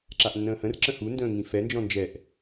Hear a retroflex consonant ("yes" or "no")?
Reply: no